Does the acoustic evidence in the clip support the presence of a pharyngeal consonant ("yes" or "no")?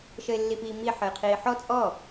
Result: yes